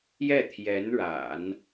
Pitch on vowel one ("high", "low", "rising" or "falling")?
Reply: falling